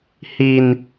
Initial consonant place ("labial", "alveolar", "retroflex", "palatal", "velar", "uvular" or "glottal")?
glottal